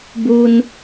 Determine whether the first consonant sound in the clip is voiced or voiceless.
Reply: voiced